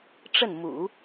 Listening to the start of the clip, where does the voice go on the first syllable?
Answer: falling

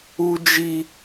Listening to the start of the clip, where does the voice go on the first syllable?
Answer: high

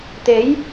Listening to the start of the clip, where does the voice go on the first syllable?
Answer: rising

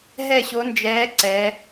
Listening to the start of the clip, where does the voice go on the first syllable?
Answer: falling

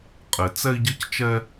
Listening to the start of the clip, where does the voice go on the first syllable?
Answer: low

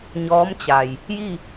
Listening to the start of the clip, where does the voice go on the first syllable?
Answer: rising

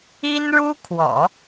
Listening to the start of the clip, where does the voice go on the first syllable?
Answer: high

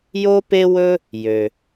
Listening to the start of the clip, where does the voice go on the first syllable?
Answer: high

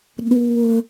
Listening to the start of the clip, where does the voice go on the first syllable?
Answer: low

